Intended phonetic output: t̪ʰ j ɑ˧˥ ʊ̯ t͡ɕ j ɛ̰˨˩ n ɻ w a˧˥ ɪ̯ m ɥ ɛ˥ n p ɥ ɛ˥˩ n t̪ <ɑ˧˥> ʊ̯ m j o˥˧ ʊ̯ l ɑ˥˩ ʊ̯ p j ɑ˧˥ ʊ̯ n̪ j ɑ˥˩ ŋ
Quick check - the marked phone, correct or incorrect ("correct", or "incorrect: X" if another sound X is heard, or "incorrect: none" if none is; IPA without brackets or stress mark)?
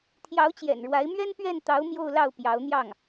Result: correct